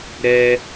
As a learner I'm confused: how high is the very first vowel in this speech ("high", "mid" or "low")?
mid